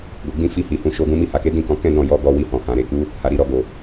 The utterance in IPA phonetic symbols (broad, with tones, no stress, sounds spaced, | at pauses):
ɡ o˨ ɡ͡b ĩ˧ f i˧ h i˨ h ũ˧ ʃ o˧ ɡ ũ˦ m i˧ h a˨ k e˨˦ d ĩ˦˨ k ɔ̃˧ k ɛ̃˦ d ɔ̃˦˨ j ɔ˧ ɡ ɔ˧ w i˧ h ɔ̃˨ h ã˨ ɾ e˨ k u˨˦ | h a˨ ɾ i˨ ɾ ɔ˨ ɡ o˨